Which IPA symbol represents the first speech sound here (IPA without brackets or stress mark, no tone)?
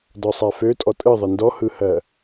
d